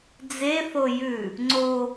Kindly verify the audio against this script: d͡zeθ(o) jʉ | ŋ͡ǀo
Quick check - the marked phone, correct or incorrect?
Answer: correct